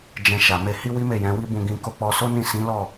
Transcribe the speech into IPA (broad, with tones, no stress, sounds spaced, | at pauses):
d͡ʒ ɛ̃˧ ʃ a˨ m e˧ h i˦ w i˦ m e˦˨ j ɛ̃˨˦ w i˦ b ũ˧ ɡ ĩ˧ k o˧ k͡p ɔ˧ s o˦ n ĩ˦˨ s ĩ˨˦ l ɔ˦˨